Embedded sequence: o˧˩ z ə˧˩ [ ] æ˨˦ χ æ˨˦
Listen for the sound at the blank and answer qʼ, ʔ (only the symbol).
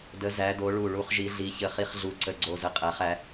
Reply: qʼ